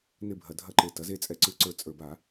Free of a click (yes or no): no